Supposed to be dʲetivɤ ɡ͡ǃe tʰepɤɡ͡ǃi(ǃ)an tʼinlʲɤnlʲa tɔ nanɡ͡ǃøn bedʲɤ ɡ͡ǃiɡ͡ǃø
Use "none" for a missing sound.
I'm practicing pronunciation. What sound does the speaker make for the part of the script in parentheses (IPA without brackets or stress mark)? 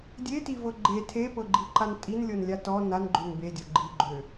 ǃ